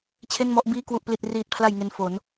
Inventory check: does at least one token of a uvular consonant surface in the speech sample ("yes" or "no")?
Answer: no